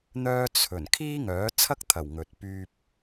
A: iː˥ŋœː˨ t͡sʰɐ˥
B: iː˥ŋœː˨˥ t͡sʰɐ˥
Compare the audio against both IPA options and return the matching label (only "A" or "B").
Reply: B